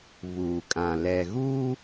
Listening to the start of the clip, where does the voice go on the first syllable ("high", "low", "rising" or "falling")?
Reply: low